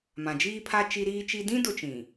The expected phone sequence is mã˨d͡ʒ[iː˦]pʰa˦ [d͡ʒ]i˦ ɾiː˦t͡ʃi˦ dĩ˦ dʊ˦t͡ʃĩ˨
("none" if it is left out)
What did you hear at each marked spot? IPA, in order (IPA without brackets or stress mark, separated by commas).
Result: iː˦, t͡ʃ